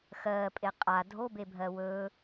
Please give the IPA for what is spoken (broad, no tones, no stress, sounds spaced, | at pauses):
x ɜː pʼ e qʼ a dʱ o b e bʱ ɜ w ɵ